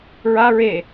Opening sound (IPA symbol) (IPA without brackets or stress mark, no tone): ɹ